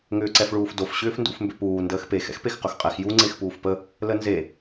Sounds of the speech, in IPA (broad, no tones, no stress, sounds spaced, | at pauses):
ŋ ʏː ǀ ɛ f ɭ uː f d o f ɕ ʏː f n d ṵ f m b ʏ p uː n d əː x p e x ɛ̰ x p e x q ɵ x qʼ ɛ x j u ŋ͡ǀ e x p uː f p ə | l ə n z e